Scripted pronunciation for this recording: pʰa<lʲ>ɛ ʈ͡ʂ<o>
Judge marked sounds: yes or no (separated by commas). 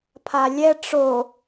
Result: yes, yes